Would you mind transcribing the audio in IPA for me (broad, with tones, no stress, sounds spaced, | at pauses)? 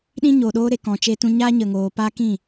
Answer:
ɗ ĩ˦ ɲ oː˨ ɗ oː˦ ɾ e˨ k ɔ̃˨ t͡ʃ eː˦ t ũ˧ ɲ aː˦ ɲ ə˧ ŋ oː˧ p aː˦ k ĩ˦˨